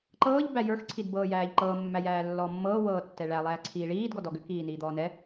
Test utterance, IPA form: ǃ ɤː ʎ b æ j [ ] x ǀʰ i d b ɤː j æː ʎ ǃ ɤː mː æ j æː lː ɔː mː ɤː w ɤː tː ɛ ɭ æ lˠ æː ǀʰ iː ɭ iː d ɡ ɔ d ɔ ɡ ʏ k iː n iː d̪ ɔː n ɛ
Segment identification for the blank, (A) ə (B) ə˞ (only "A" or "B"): B